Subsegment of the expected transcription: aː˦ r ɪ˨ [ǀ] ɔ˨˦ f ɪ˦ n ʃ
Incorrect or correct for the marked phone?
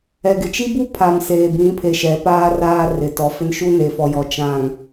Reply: incorrect: t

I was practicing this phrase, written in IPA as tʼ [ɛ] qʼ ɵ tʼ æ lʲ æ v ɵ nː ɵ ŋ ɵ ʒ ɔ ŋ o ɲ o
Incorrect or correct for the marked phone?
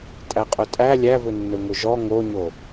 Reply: incorrect: æ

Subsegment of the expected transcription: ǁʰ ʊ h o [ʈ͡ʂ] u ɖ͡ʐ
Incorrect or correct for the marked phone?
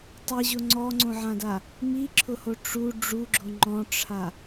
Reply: correct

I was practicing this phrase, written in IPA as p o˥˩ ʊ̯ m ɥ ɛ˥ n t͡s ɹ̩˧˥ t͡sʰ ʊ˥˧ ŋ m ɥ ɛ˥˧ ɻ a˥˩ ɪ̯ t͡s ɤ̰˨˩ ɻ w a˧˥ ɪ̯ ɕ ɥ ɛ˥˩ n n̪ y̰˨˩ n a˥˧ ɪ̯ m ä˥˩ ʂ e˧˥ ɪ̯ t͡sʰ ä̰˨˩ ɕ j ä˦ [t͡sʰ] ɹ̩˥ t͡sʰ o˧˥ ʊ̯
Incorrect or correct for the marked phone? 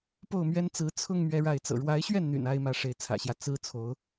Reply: incorrect: t͡s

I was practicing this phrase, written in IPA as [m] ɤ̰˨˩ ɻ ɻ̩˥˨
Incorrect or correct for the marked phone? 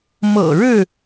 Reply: correct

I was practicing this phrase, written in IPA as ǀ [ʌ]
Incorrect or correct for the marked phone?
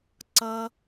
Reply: correct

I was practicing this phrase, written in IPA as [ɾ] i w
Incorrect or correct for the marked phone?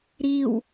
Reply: correct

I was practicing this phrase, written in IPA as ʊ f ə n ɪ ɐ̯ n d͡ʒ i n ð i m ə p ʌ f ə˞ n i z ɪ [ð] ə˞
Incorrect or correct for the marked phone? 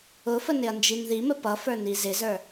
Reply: incorrect: z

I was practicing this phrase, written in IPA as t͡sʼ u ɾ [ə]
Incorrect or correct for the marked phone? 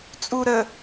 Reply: correct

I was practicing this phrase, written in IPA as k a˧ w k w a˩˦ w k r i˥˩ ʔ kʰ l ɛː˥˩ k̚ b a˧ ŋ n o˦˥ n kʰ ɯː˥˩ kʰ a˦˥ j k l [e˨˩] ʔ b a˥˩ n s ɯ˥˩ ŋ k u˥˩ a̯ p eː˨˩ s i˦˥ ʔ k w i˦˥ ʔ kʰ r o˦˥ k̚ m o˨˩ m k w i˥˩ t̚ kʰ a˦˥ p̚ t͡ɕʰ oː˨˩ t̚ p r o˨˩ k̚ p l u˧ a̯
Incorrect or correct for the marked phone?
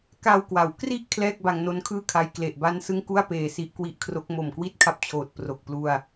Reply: correct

